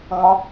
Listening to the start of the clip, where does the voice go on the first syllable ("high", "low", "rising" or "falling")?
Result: high